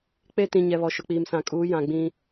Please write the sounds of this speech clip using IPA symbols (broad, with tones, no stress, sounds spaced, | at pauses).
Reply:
k͡p e˦ t ĩ˨ ɲ ɛ˨ β ɔ˨ ʃ ʊ˨ k͡p iː˨ m s ã˨ kʼ uː˨˦ j ã˨ ɡ͡b ĩ˦